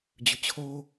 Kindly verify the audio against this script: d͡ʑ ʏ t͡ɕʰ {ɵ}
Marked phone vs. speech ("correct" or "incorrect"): incorrect